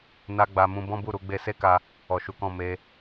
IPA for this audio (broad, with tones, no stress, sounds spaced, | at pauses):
n a˧ ɡ͡b a˨ m ũ˧ b ɔ̃˦ b u˦˨ ɾ u˧ ɡ͡b e˦ s e˦ k a˧ | ɔ˨ ʃ u˨˦ k ɔ̃˦˨ m e˧